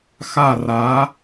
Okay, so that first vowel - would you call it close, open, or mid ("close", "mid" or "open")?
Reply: open